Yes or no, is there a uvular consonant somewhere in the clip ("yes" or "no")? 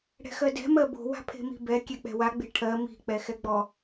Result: no